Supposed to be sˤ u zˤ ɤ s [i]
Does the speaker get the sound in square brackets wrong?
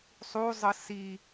no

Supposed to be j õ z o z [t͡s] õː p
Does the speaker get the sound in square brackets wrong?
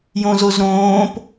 yes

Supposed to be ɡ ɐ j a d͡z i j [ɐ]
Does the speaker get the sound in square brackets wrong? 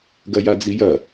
no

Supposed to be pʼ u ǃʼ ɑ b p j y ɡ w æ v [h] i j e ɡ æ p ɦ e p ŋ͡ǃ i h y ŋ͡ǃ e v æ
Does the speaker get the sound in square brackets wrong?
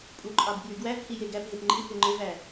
no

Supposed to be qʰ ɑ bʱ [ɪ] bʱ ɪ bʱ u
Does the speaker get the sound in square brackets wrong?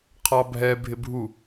yes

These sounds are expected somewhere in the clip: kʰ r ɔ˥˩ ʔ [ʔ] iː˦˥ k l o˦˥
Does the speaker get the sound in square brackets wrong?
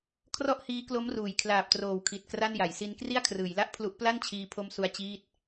yes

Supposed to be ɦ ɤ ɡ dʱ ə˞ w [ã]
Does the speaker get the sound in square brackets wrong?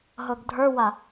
yes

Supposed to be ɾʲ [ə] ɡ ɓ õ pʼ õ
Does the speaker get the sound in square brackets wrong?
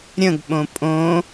yes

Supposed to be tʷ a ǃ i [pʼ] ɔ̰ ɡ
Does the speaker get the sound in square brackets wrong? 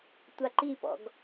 yes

